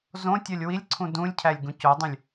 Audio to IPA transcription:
z õ tʲ ɒ lʲ w i lʲ ǀʰ ũ d ũ lʲ cʰ æ lʲ ɡ ũ c o dˤ ũ lʲ

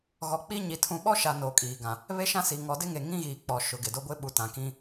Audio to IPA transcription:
ɣ ɔ˨ k͡p i˦ ɲ i˨ tʰ ũ˨ ɓ ɔ˦ ʃ a˨ n oː˨ kʼ iː˨ ɡ ã˨ | β e˦ ʃ ã˦ s i˨ ŋ ɔ˨ d ɪ˦ ŋ e˨ ŋ ĩ˦ ɣ iː˨ k͡p ɔ˨ ʃ ʊ˨ ɡ ɪ˨ d o˦ ɡʷ ɪ˦ ɓ u˨ t ã˨ k ĩ˦

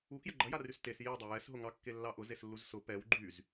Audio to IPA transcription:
u k j ə ɡ͡ǃ ɐ j a r y s t e s j i dˤ ɑ j ɛ s ɦ ʊ ŋ ɑ kː e lː ɑ ʔ ʊ z e s lː u z s ʊ p ɛ w ɡ͡ǃ y z

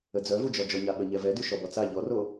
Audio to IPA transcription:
ə d͡z œ v u d͡ʒ ɔ d͡ʒ ɔ ɲ a ɓ ə ɲ ɛ v ɛ d y ʃ ɔ b ɔ t͡s a ʎ ɔ r o

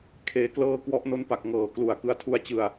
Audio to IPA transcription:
kʰ eː˧ k l ɤː˥˩ k w ɔ˦˥ ʔ n o˦˥ n p a˨˩ k̚ ŋ ɤː˨˩ k l u˨˩ a̯ k ɯ˦˥ a̯ tʰ u˦˥ a̯ t͡ɕ ɯ˧ a̯

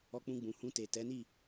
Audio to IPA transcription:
ɔ˧ k͡p ũ˧ ɡ͡b ũ˨ h ũ˧ t e˨ t ɛ˨˦ n i˦˨

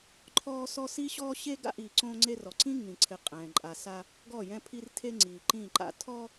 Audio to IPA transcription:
ǃʰ ɔː˦ s ɔ˦ s i˦ ɕ ɔː˦ ɕ e˦ ɡ a̰˦ ʔ iː˨ ǀ õː˦ ŋ͡ǀ e˦ r ɔ˨ ǀ ĩ˦ ŋ ĩ˨ ǀʰ ɪ˨ qʼ ɛ̃˨ ǃʼ a˨ s a˦ | ɡ ɔ˦˨ j ɛ̃˦ pʰ i˦ r tʰ e˦ ŋ͡ǀ iː˨ ǃ ĩː˦˨ ǃ a̰˦ tʰ ɔ˦

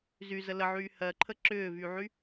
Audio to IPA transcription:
z y z ə l ə ʕ yː h ɜ ǃʰ ə ǁ ʏː v y ʕ y

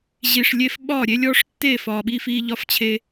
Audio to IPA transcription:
ʑ i˨ ʂ lʲ e˦ f ɓ ɒː˦˨ ɾʲ e˦ lʲ ɔː˦ ʂ tː e˦˨ f ɒː˨ ɓ iː˦ f iː˦ ʎ ɒ˦ f t͡ɕʰ e˦

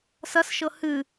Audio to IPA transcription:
s ɐ s ʃ ɤ h ɨ

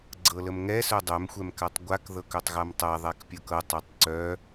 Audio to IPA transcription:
ɡ͡ǀ ɤ l ə m ŋ ɛ s œ dˤ œ m xʷ ɛ m k a tˤ ɡʷ a k ð ɤ k œ tˤ ɣ a m tˤ æ ðˤ æ k pʲ ɤ k ɤ tˤ œ tˤ ǀ œ

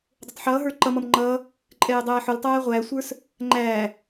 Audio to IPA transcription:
dˤ ʊ tˤ ħ ʌː ɦ ə˞ ǃ ʌ m ʌ m ŋ͡ǃ ʌ | ǃʼ ɛː dˤ æː ħ ʊ l tˤ æː ʁʷ æː sʷ ə˞ s | ŋ͡ǃ æ

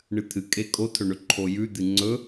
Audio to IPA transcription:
ɳ ɨ t̪ʰ ɨ kʼ e kʼ o tʰ ɵ ɳ ɵ ǃʰ o j ʉ d̪ ɨ ŋ͡ǀ ɵ

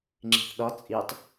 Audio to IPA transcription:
ŋ͡ǁ i̤ θ ɗ ɒ t͡sʼ i tˤ

